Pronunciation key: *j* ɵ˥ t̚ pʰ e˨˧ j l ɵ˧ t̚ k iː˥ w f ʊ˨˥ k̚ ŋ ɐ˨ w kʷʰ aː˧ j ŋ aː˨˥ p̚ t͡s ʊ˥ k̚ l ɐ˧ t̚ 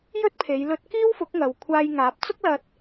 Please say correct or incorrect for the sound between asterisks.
correct